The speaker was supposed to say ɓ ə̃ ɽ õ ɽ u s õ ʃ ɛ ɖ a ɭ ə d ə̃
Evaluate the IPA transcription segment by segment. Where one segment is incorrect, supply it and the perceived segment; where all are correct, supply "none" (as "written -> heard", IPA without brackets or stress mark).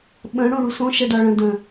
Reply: ə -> ə̃